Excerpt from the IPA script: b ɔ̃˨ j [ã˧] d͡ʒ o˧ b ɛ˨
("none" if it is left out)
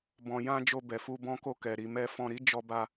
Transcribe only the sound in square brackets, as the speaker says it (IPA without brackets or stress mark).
ã˧